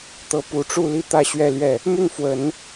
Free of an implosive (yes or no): yes